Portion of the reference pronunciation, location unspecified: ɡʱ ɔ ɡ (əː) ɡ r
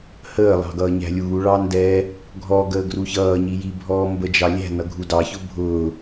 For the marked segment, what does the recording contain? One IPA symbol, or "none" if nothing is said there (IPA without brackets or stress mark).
əː